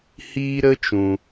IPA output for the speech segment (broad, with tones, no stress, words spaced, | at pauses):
hiː˦ɾə˦ t͡ʃũ˧